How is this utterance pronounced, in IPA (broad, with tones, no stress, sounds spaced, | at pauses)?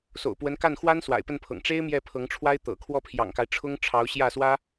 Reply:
s o̰˨˩ ʊ̯ p w ə˧˥ n k a˥˩ n x w a˥ n s w a̰˨˩ ɪ̯ p ə˥˩ n pʰ ɤ̰˨˩ ŋ ʈ͡ʂ e˥ ɪ̯ m j ɛ˥˩ pʰ ɤ˧˥ ŋ ʈ͡ʂʰ w a˥ ɪ̯ t̪ ɤ̰˨˩ kʰ w ɔ˥˩ pʰ j ɑ̰˨˩ ŋ k a˦ ɪ̯ ʈ͡ʂʰ ʊ˥ ŋ ʈ͡ʂʰ ɑ˧˥ ʊ̯ ɕ j ä˥˩ s w ä˥